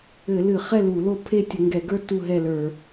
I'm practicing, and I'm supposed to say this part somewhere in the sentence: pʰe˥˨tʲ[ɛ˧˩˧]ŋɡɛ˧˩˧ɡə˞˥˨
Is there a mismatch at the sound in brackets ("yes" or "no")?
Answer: yes